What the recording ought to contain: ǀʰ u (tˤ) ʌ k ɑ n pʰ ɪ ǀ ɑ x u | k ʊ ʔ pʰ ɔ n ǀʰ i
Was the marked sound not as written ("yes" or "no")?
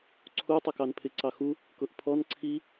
no